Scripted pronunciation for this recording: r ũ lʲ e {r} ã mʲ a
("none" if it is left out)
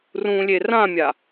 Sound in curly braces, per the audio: r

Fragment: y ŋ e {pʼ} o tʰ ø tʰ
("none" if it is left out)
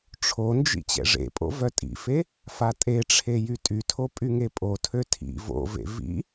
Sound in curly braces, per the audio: pʼ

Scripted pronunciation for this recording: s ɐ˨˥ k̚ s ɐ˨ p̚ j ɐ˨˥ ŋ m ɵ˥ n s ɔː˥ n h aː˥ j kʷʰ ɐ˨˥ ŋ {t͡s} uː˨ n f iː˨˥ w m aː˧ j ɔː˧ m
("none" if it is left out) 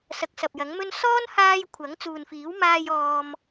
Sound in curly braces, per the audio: t͡s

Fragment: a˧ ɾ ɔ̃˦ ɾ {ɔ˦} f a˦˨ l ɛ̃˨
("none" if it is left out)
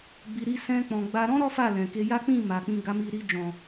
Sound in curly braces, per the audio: ɔ˦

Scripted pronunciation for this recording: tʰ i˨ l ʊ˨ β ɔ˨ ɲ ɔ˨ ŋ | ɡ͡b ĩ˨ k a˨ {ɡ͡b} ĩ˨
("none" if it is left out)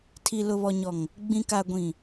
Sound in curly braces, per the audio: ɡʷ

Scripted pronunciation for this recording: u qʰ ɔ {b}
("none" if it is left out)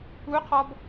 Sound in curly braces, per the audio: b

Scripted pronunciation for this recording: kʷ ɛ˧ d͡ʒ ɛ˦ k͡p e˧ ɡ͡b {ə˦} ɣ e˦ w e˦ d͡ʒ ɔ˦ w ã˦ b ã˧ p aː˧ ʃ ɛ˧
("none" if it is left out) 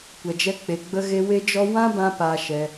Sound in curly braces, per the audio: ə˧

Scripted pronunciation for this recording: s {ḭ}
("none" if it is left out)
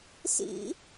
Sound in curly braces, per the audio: ḭ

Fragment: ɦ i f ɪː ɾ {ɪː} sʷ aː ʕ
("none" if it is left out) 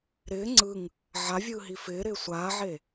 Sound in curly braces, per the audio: ɪː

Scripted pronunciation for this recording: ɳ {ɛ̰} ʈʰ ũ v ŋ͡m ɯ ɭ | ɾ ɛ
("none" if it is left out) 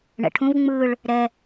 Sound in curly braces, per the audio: ɛ̰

